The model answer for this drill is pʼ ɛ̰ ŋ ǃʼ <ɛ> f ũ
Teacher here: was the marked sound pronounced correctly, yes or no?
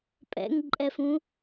yes